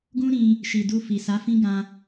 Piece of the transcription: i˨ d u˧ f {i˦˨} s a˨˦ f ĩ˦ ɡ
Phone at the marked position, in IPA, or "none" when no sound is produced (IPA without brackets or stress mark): i˨